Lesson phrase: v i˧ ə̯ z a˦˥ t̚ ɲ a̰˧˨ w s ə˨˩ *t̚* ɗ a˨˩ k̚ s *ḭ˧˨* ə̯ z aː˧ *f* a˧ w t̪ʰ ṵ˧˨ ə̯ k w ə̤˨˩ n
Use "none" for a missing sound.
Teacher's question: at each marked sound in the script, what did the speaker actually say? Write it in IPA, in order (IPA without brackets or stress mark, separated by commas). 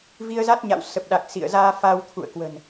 p̚, ḭ˧˨, f